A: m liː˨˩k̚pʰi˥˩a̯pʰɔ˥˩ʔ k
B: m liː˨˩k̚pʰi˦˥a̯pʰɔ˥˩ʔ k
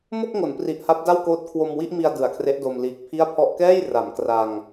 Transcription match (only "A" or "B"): A